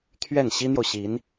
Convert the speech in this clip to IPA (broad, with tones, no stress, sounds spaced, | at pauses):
t̪ʰ ɥ ɛ˥˩ n ɕ i˥ n̪ j o˨ ʊ̯ ɕ i˧˥ n